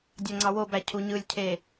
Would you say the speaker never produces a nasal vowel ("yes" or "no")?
yes